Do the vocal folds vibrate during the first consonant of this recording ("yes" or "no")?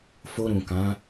no